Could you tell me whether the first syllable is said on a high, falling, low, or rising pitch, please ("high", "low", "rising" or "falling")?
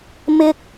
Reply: high